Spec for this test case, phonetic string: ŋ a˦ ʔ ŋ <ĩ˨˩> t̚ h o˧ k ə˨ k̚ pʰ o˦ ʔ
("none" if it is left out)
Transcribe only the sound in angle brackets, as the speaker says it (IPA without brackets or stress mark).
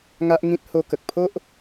ĩ˦